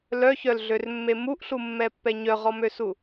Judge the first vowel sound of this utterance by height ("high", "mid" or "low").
mid